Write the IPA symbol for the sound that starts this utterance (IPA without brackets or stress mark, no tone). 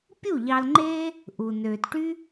pʲ